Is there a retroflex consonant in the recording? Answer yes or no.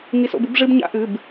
yes